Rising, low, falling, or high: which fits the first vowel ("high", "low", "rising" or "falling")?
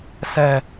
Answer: low